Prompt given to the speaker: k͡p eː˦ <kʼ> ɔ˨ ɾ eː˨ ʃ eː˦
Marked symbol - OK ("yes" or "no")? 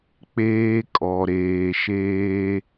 yes